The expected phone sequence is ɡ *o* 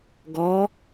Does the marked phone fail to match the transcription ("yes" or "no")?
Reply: yes